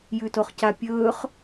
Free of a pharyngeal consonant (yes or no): yes